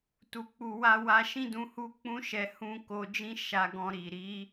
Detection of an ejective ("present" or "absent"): absent